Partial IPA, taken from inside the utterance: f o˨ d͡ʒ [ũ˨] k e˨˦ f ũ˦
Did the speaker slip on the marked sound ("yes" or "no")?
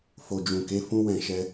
no